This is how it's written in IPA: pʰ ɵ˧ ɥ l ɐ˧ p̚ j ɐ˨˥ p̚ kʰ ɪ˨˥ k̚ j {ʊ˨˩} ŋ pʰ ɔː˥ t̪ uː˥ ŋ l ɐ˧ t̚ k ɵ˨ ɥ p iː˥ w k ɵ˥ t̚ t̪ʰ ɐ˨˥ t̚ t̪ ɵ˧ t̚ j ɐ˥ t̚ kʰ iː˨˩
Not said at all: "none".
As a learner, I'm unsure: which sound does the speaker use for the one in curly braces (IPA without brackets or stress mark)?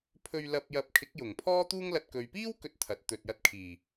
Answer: ʊ˨˩